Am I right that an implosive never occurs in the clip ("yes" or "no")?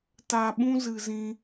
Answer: no